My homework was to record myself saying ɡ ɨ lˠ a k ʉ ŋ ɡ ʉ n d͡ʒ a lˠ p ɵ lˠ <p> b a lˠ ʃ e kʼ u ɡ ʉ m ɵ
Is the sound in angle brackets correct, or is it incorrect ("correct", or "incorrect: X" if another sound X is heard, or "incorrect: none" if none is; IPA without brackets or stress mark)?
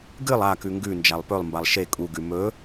incorrect: m